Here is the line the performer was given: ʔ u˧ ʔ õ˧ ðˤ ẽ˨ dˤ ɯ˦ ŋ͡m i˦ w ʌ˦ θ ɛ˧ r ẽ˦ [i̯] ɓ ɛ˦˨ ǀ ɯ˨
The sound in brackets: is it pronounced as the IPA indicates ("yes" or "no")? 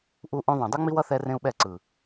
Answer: no